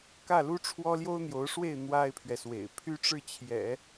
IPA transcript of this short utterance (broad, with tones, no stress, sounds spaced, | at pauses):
k ä˥˩ l u˥ ʈ͡ʂʰ w ɔ˥ l j o˥ ʊ̯ n̪ j o˧˥ ʊ̯ ʂ w e˥˩ ɪ̯ n̪ w a˥ ɪ̯ pʰ ɥ ɛ˨ s w ḛ˨˩ ɪ̯ pʰ y˥ ʈ͡ʂ ɻ̩˥˩ t͡ɕʰ j ɛ̰˨˩˦